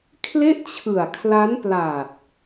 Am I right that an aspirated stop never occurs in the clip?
no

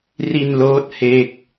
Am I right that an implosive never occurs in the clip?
yes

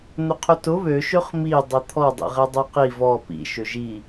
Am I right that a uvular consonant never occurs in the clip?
no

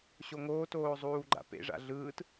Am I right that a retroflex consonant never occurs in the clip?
no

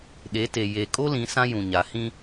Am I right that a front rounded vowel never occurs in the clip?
yes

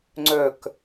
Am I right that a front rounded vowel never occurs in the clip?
no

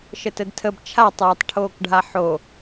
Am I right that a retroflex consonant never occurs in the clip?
no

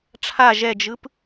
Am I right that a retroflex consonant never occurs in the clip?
no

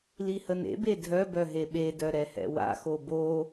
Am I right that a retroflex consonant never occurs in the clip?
yes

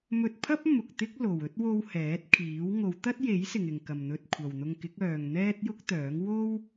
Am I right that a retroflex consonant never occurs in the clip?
yes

